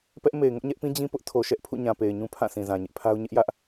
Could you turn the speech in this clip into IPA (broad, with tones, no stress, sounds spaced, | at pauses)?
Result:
p ɛ˦ ʔ m e˨ ɪ̯ ŋ ʊ˦ ʔ ɲ ɛ˦ ʔ p ĩ˦ d͡ʑ ĩ˦ p ʊ˦ ʔ tʰ o˨ ʃ ɛ˦ ʔ pʰ ṵ˦˨ ɲ ã˨ p e˨ ɪ̯ ɲ ũ˦ pʰ ã˦˨ sʰ ĩ˨ z ã˨ ɲ ɪ˦ ʔ pʰ a˦ ʊ̯ ɲ ɪ˦ ʔ j ä˦ ʔ